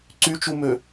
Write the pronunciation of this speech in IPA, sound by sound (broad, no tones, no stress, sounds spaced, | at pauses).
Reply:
ǀ y t͡ʃ u m ø